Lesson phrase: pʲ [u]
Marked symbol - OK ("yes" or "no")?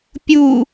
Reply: yes